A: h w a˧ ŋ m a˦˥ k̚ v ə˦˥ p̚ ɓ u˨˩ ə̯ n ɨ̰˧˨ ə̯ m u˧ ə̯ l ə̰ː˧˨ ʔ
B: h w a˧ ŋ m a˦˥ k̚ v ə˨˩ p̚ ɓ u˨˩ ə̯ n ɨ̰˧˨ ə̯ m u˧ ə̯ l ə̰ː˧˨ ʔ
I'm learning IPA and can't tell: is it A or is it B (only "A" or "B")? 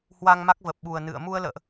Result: B